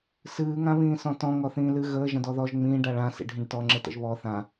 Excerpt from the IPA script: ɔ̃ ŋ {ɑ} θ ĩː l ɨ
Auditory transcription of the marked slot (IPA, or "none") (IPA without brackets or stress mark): ɔ